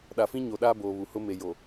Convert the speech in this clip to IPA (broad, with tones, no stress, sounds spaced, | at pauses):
ɗ a˨ f ĩ˦ ɲ o˨ ɗ aː˦ b oː˨ β u˨ h ʊ˦ m e˨ j o˨